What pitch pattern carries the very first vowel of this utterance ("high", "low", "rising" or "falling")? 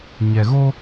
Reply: low